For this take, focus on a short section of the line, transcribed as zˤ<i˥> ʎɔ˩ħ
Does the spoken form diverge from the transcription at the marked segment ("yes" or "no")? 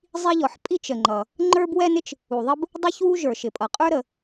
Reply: no